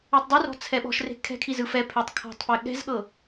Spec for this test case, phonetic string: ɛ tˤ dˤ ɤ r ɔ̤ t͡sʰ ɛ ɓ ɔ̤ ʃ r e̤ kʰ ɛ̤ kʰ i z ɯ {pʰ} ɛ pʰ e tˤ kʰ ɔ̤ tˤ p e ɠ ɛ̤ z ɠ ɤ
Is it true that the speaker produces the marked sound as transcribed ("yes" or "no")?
no